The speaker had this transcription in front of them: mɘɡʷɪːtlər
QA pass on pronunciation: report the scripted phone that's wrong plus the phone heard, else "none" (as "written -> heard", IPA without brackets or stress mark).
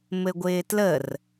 none